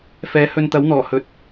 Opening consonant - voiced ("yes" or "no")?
no